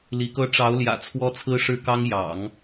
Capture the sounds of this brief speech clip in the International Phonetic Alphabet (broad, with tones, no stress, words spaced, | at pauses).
li˧˥kɤ˥ ʈ͡ʂɑ˧˥ʊ̯ljä̰˨˩ t͡sʰwɔ˥t͡sʰɹ̩˥ʂɻ̩˥˩kɑ˥ŋ jɑ̰˨˩˦ŋ